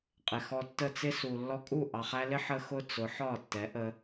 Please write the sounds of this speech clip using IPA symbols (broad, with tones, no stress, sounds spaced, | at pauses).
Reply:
qʼ ɪ˨ x ɔ˧ tː ə˦˨ t͡s ɪ˦ s u˨ lː ɔ˧ kʼ u˦˨ ʔ ɑ˨ χ æ˧ l ɪ˦ ħ ə˦ x ʊ˦ t͡s ʊ˨˦ ħ ɒ˦˨ tː ɛ˨˦ ʔ ə˧